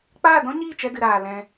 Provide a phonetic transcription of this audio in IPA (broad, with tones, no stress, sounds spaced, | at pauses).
k͡p aː˦˨ d ɔ̃˦ ɲ iː˦˨ t͡ʃ ɛ˧ d ɨ˨ ɾ aː˨ l ɛ̃˧